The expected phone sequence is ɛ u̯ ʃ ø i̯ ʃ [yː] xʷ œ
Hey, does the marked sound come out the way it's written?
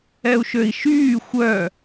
yes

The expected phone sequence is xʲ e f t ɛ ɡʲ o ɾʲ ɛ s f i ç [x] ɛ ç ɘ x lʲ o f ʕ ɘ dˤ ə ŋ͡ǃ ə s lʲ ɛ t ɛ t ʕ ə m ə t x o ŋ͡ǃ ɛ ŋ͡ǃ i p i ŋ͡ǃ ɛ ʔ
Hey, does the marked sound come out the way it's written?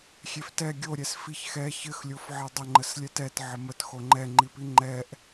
yes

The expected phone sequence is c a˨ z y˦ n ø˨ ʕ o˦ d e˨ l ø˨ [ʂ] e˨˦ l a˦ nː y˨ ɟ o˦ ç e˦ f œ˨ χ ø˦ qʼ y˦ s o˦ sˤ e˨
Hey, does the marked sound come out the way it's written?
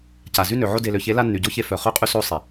no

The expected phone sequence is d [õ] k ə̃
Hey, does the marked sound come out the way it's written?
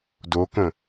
no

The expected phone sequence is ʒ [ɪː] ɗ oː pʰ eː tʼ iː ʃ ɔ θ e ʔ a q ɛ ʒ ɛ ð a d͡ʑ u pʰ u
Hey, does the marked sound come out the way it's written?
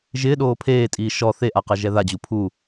yes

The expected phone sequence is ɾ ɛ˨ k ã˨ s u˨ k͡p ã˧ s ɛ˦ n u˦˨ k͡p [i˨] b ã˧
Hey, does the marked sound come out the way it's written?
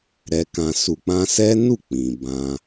no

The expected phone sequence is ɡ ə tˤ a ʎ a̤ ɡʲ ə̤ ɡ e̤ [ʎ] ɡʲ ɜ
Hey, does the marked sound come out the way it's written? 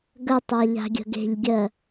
yes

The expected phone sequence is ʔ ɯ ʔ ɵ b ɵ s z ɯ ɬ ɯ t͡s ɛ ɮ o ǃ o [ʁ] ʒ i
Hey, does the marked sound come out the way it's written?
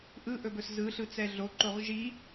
yes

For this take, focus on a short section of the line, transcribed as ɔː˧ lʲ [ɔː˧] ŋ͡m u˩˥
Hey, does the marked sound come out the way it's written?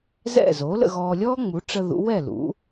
no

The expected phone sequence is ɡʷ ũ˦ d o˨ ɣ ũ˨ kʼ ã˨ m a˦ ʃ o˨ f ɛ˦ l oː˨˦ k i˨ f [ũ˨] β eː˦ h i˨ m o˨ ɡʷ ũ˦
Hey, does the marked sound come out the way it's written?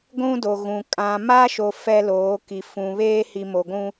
yes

